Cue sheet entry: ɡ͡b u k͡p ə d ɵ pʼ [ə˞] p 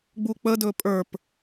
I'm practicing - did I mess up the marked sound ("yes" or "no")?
no